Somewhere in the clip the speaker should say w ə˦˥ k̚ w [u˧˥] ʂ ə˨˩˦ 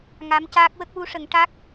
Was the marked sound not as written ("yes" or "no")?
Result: no